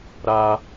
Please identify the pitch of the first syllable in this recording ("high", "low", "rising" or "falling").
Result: high